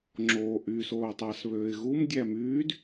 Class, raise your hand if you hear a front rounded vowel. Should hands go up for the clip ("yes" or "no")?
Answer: yes